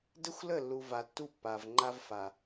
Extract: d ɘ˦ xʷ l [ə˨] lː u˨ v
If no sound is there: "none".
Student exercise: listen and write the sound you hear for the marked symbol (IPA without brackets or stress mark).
ə˦˨